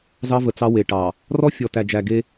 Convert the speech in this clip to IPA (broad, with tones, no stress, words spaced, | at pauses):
zɑ˦və˨t͡sɑ˦ we˨ʈɑ˨ | rɔ˦fʲɔ˨tæ˨d͡ʒæ˨ ɡe˦